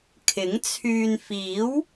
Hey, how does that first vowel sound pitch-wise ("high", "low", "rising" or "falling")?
rising